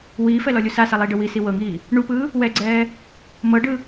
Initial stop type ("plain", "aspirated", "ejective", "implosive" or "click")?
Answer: plain